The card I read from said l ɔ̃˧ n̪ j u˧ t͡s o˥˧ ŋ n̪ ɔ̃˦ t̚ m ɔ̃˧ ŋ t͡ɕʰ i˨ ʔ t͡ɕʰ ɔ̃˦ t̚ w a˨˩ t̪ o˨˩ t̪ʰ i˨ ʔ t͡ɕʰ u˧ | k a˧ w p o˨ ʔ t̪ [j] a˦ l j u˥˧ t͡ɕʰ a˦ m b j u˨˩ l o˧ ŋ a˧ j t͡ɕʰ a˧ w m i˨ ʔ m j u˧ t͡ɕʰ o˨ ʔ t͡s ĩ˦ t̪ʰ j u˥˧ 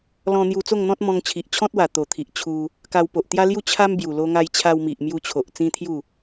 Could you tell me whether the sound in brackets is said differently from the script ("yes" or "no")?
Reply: no